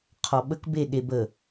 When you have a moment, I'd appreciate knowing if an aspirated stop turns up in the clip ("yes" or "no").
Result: yes